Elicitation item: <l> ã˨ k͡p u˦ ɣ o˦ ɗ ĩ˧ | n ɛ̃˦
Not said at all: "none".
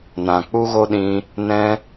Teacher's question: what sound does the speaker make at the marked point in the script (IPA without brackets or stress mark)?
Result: n